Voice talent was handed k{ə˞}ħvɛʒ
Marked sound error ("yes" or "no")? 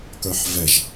no